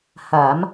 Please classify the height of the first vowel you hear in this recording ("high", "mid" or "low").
low